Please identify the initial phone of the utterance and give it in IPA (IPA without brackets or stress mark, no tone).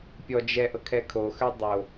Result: pʲ